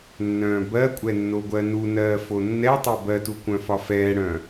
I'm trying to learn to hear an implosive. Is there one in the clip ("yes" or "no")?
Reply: no